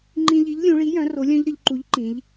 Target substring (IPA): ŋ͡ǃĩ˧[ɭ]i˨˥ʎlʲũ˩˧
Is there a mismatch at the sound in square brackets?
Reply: yes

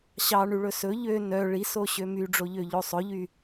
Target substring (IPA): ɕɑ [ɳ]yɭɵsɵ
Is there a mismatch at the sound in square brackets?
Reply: no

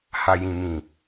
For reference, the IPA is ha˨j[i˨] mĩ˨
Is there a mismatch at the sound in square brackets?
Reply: yes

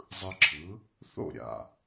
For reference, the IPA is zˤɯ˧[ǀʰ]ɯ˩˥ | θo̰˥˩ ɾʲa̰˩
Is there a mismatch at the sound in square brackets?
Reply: yes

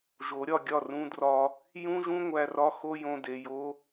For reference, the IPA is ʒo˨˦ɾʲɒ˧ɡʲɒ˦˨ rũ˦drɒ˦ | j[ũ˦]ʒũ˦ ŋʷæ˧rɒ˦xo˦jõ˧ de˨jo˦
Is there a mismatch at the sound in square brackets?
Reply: no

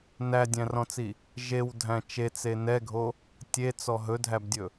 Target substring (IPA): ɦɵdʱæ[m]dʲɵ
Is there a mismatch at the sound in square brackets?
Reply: yes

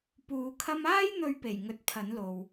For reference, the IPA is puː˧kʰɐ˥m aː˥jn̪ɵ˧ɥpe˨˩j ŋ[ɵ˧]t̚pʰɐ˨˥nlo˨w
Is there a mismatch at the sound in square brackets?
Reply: no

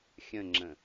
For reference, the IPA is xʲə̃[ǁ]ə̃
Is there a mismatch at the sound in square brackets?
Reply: yes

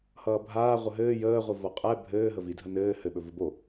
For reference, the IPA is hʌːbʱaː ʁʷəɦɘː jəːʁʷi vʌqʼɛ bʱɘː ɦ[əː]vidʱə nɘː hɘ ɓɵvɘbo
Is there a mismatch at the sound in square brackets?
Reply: yes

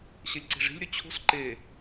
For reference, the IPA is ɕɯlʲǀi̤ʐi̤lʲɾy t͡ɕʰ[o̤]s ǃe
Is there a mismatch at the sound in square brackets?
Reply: no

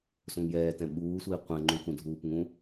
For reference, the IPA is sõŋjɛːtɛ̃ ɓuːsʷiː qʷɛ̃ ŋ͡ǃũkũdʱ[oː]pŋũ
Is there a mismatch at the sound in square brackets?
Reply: yes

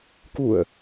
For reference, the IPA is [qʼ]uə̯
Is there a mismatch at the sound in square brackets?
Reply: yes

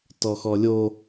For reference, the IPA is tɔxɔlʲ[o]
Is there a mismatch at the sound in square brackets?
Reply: no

